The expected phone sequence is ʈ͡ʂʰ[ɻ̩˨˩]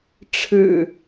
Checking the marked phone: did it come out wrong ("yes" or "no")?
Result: no